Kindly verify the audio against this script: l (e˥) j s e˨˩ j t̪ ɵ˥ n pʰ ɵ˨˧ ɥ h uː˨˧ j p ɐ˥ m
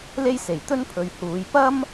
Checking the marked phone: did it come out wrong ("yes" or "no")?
no